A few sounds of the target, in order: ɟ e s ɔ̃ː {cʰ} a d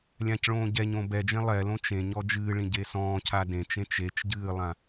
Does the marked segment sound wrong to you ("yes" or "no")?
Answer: no